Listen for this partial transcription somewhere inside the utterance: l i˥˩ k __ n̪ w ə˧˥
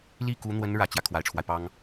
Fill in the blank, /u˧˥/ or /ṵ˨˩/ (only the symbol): u˧˥